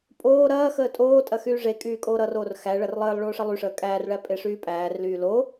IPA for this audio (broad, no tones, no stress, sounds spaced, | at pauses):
pʼ oː ɾ ɐː x əː tʼ oː tʼ ɐ x yː ʐ e kʼ yː kʼ oː ɾ ʌ r oː r x æ ɭ ɐ r lˠ əː lˠ ɭ oː ʂ ʌ lˠ y ʂ əː kʼ æː r ɭ æ pʼ e ʂ yː pʼ æː r l yː l o